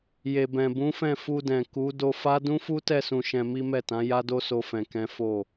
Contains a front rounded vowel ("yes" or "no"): no